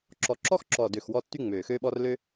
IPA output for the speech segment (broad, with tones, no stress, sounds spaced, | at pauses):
ǁ ɔ˨˩ ǁ ɔ˥ x ǁ ɔ˨˩ d ø˨˩ x w ɔ˥ tː y˥ ŋ͡m øː˨˩ x øː˥ ɓ ɔ˥ r l ø˥